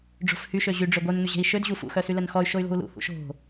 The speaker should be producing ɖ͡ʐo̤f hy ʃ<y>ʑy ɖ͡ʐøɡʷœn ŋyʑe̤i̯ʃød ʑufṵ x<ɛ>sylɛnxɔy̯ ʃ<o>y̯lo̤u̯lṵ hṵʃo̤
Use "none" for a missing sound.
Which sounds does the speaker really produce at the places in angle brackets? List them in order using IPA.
ø, œ, o

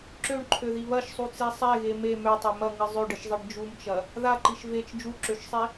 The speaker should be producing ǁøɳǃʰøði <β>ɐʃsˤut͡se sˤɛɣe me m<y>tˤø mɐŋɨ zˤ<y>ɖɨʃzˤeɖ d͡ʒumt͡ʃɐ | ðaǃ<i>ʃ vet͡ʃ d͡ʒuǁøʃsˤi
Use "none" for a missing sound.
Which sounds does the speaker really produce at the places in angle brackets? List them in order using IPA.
β, ø, ø, i

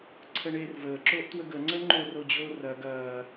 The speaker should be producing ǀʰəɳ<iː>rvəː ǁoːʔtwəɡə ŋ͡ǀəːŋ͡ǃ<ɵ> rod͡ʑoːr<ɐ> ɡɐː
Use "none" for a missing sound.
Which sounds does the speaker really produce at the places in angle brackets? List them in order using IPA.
eː, o, ɐ

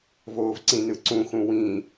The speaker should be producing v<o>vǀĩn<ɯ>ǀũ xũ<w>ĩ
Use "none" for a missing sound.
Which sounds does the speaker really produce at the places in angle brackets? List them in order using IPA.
oː, ɯ, w

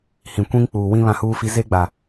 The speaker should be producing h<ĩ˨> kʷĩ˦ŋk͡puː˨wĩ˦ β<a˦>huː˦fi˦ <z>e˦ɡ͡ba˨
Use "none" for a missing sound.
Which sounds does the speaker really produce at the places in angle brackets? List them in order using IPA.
ĩ˨, ã˦, z

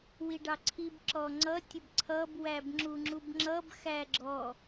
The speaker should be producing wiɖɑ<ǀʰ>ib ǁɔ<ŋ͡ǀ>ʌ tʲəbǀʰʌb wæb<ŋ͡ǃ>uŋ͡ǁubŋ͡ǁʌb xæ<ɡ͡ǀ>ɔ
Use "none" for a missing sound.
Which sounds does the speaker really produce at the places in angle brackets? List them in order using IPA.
ǀʰ, ŋ͡ǀ, ŋ͡ǁ, ɡ͡ǁ

